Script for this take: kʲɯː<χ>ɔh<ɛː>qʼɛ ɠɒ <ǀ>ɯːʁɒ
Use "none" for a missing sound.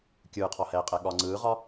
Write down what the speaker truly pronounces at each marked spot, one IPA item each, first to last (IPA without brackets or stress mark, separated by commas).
qʰ, ɛː, ŋ͡ǀ